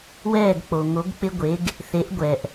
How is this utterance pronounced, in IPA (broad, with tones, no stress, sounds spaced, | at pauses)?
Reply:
w ɛː˥˩ ɡ k͡p o˩ ŋ o˩˥ ɡ k͡p ɪ˥ ɡʷ e˩˥ ɡ | θ e˩˥ ʔ ɡʷ ɛ˩ ʔ